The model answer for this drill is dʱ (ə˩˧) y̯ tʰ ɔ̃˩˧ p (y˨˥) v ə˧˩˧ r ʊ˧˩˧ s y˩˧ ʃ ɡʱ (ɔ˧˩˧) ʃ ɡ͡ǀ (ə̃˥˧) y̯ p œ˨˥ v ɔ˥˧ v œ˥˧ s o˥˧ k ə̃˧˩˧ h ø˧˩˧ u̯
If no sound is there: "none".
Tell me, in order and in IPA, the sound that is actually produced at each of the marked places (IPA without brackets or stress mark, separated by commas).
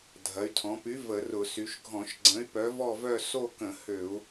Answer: ɐ˩˧, y˨˥, ɔ̃˧˩˧, ə̃˨˥